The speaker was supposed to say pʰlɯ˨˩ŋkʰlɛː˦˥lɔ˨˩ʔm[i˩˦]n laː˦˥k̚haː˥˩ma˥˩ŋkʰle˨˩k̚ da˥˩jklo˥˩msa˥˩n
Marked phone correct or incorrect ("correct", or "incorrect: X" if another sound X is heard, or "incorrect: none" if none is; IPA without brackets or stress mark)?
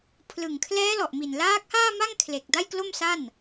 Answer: incorrect: i˨˩